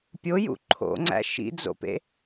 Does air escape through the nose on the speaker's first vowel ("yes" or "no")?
no